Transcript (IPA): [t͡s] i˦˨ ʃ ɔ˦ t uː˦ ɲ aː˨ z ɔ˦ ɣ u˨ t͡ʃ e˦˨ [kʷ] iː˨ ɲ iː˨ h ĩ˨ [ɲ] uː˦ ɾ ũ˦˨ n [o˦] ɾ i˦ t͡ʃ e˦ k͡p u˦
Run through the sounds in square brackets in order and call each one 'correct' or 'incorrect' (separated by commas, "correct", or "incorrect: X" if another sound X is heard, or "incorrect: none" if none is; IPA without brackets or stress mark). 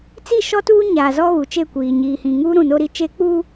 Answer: correct, correct, incorrect: ŋ, correct